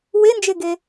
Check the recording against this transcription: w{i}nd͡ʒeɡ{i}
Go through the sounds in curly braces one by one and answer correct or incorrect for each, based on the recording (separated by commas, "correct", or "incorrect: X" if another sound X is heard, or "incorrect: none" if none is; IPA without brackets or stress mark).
incorrect: e, incorrect: e